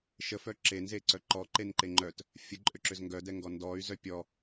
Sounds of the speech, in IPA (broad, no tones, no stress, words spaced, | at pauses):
ʃəfœ ǁenzeǀœ ǃɔǃenǃe ŋ͡ǃœt | fʲəǃʼʏǁʏz ŋɡœdɛŋɡɔ ndɔy̯zœ pʲɔ